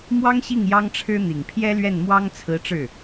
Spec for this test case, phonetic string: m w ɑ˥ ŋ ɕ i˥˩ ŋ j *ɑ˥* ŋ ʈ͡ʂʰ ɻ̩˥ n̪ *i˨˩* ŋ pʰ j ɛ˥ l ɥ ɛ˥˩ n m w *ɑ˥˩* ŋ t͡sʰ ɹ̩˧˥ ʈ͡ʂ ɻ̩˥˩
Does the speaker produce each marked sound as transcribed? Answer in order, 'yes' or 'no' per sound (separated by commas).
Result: yes, yes, no